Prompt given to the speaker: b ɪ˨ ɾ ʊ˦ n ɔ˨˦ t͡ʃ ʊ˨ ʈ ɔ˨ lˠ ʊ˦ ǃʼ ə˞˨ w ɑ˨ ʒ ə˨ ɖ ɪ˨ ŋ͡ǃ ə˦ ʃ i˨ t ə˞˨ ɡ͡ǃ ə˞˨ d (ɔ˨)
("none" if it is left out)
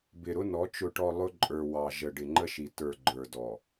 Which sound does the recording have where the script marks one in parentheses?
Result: ɔ˨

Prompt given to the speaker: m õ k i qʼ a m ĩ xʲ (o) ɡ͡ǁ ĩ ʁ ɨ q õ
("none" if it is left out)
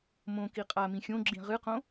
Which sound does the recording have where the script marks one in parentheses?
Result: õ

